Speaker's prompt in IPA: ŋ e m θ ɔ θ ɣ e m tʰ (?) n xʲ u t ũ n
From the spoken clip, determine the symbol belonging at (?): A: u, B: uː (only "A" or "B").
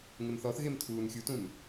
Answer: B